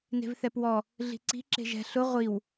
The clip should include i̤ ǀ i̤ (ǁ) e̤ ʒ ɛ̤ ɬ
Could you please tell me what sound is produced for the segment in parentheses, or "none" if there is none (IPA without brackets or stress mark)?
ǁ